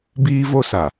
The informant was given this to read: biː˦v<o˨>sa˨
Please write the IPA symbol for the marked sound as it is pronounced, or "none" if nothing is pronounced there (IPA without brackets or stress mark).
o˦